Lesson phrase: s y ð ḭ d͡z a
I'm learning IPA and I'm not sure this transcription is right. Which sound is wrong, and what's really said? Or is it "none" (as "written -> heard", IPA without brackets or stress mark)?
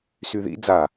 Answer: none